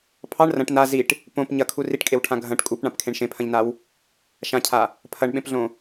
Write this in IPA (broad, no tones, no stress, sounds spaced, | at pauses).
pʰ ɑ ɳ r ɐ̃ ʈ n a z i ʈ | p õ p ɲ ɐ kʰ u r i ʈ kʼ e w ʈʰ ã ɡʱ ɐ̃ ʈ kʼ u p ɳ ã p kʰ ẽ ɳ ʃ ẽ pʰ ɐ̃ ʎ n a w | ʃ ã cʰ a | pʰ ɐ ɳ ɓ ẽ p ɮ õ